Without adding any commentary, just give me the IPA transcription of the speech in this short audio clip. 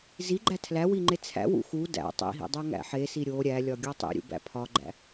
z i ɡ͡ǃ æ tʰ l æ w i ŋ͡ǃ e t͡sʰ æ̰ w ṵ x u d æ̰ tˤ ḭ ɦ ḭ dˤ æ ŋ æ̰ ħ e s i ɾʲ o ɾʲ æ lʲ ɒ ɡʲ ɒ tˤ ḭ ɾʲ ṵ b æ̰ pʰ ɒ ɡ͡ǃ æ̰

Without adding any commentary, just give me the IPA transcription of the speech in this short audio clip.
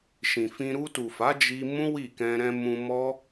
ʃ ĩ˨ f ĩ˧ ɾ u˧ t u˨ f a˨˦ d͡ʒ i˧ m ũ˦ w i˦˨ k ɛ̃˧ ɾ ɛ̃˧ m ũ˧ m ɔ˦

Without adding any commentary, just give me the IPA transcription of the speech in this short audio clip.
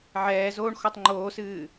ʕ ɛː z oː ɳ x ɔ tˤ ŋ͡ǃ oː s ɨː

